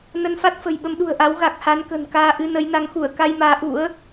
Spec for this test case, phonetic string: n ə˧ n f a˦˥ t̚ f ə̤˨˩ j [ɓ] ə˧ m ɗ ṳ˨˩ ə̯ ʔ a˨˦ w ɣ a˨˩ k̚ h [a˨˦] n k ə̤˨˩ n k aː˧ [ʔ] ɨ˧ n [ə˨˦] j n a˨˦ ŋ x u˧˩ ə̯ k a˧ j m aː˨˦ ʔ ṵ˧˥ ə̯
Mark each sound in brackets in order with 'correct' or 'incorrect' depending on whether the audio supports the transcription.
correct, correct, correct, correct

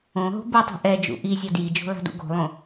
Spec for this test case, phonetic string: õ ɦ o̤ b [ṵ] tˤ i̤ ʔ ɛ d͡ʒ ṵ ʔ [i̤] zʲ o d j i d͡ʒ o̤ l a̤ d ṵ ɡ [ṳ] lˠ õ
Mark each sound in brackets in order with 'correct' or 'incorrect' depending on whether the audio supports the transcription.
incorrect: u, incorrect: i, incorrect: o̤

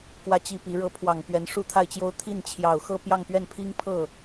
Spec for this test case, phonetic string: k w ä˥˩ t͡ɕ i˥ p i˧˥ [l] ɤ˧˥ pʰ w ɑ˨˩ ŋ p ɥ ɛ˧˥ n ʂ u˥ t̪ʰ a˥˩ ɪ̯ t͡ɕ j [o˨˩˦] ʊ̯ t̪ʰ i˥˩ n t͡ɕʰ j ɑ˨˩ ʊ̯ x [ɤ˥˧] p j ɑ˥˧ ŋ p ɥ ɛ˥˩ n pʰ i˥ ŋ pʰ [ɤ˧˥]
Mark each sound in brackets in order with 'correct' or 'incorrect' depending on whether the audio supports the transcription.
incorrect: ɻ, incorrect: o˥, correct, incorrect: ɤ˥˩

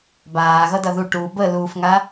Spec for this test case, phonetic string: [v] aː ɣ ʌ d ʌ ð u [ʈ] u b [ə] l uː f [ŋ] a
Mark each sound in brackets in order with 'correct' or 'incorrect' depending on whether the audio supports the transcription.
incorrect: b, correct, correct, correct

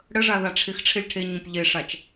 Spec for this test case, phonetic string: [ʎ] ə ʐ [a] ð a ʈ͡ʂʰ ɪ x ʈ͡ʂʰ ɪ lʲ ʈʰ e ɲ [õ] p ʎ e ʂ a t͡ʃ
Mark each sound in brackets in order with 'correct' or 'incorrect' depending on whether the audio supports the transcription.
incorrect: ɽ, correct, incorrect: ũ

